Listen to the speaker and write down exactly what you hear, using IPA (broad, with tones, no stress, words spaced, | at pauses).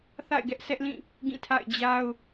θa̰˦˨ɪ̯ɡɛ˦ʔsɛ˦ʔlĩ˦˨ | ɡĩ˦˨tʰa̰˦˨ɪ̯ d͡ʑa˦ʊ̯